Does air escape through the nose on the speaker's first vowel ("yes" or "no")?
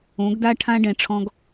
yes